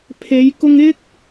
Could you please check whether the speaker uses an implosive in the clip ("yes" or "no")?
no